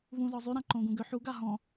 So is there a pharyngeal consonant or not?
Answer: yes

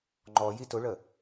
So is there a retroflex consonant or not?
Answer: yes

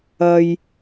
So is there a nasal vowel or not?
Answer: no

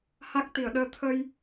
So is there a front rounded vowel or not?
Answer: no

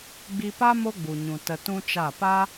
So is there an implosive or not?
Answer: no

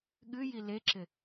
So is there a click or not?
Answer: yes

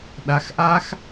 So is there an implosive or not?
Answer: yes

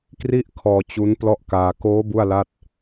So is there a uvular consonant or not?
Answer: no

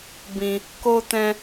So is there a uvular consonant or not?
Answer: no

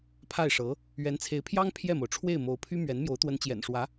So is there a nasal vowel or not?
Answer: no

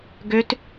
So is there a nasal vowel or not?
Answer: no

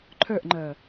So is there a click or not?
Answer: yes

